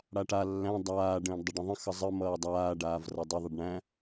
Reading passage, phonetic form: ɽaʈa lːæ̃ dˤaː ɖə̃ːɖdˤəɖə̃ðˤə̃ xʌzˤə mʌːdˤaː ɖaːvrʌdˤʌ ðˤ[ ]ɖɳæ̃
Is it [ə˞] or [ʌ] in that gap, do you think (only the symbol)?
ʌ